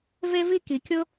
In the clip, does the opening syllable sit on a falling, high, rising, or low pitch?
high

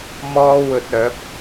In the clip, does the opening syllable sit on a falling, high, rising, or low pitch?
high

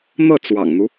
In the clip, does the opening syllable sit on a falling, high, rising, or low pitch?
falling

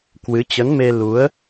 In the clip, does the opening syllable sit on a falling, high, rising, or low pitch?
rising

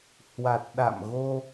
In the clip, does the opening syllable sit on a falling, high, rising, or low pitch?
low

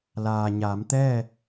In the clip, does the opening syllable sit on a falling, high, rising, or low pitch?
low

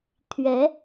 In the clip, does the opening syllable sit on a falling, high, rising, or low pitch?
rising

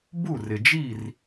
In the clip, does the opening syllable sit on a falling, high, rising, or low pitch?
falling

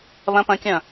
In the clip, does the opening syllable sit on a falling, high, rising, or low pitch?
rising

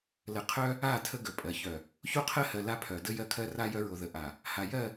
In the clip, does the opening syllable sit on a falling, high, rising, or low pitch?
low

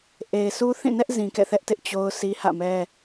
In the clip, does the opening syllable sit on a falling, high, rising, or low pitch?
low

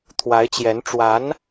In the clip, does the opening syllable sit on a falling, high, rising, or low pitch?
rising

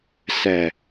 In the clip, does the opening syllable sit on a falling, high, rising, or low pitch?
low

